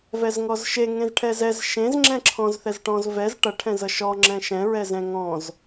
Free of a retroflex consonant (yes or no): no